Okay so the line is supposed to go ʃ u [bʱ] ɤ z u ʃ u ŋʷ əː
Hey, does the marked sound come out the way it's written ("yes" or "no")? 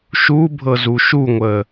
yes